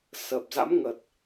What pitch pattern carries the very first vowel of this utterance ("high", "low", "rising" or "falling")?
low